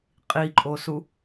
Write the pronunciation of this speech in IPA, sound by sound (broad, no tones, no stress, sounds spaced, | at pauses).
qʼ i ǃʼ o s u